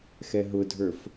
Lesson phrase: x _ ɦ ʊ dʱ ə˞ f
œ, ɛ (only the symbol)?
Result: ɛ